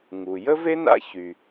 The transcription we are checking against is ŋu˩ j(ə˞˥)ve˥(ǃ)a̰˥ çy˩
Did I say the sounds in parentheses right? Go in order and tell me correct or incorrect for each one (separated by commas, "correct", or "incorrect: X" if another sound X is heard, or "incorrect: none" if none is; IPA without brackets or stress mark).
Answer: incorrect: ə˥, incorrect: n